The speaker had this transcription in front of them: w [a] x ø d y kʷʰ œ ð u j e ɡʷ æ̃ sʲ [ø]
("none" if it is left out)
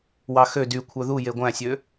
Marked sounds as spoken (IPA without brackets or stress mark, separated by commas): ɑ, ø